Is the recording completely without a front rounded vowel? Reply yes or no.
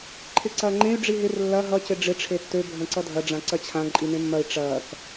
no